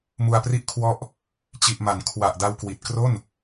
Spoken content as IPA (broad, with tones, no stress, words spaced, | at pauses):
mu˧a̯pri˥˩ʔkʰwɔ˥˩ʔ | t͡ɕi˨˩ʔma˩˦n kʰwa˨˩ʔ da˧wkwi˨˩t̚ kro˥˩n